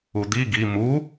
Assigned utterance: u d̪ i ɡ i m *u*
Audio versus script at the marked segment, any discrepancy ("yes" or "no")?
no